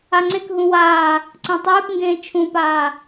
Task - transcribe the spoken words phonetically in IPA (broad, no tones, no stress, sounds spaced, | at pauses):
a ŋ͡ǀ e k ɦ ũ w aː | ǀ ẽ tˤ eː p ŋ ɡ ẽː t͡ʃʰ ũ p aː